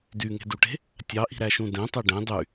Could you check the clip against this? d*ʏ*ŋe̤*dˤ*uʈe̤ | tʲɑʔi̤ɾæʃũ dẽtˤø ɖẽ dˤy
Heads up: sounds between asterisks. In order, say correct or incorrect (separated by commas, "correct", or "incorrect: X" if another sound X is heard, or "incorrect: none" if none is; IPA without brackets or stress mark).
incorrect: y, incorrect: d